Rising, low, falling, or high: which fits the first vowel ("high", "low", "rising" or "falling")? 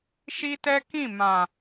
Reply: high